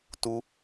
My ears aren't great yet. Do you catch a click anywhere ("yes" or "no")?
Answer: no